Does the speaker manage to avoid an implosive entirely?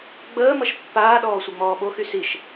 no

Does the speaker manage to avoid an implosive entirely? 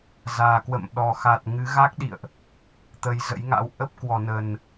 no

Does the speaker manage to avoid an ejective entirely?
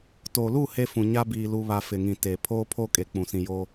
no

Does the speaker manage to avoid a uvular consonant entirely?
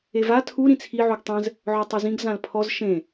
yes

